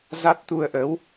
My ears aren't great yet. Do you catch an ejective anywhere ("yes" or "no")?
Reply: no